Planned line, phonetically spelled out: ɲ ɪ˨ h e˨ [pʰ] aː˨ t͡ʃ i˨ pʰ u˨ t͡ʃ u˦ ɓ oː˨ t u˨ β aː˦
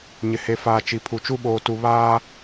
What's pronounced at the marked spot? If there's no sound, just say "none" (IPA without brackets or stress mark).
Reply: f